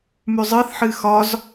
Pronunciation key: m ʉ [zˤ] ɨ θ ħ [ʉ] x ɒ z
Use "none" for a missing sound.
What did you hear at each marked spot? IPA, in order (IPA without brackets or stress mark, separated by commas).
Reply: zˤ, ɨ